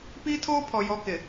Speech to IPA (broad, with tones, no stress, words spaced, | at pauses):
piː˦tʰoː˦ pʰɔ˨ jɔ˦kɪ˨